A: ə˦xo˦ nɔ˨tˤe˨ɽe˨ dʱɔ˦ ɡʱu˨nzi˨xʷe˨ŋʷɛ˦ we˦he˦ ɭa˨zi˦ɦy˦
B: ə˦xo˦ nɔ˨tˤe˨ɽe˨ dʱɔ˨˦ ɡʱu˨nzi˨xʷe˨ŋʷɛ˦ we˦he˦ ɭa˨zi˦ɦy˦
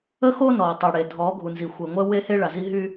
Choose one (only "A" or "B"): B